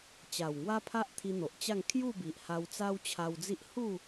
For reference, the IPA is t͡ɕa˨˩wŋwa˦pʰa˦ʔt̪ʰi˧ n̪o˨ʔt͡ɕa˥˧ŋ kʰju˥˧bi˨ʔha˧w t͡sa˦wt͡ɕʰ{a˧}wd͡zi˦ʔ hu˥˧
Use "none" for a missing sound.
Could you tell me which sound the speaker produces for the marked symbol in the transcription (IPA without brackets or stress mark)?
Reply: a˧